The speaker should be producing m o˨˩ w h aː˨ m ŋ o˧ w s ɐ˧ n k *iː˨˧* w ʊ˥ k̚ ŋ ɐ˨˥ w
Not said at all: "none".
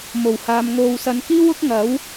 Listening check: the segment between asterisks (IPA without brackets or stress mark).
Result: iː˥